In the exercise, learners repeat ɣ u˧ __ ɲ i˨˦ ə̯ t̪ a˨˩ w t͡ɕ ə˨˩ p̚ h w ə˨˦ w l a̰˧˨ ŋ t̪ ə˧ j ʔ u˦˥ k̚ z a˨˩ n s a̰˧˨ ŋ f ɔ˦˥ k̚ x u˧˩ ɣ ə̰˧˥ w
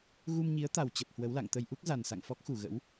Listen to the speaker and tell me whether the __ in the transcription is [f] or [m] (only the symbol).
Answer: m